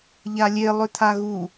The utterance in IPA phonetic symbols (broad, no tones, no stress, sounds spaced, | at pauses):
ʎ a lʲ e lˠ ø t̪ʰ a ɣ u